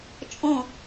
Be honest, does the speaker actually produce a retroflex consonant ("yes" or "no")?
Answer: no